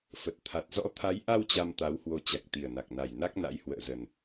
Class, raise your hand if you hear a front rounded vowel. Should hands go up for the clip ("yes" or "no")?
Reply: no